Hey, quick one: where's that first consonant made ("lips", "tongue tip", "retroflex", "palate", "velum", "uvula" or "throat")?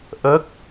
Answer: throat